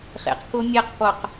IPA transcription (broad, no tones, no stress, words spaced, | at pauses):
χḛq komʲɛqpɔq